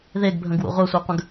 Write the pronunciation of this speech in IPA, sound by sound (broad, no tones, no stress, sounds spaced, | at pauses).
ð e ɡ bʱ ə̃ ɡ w ṵ ʁʷ œ sʷ e qʷ ə̃ ɡ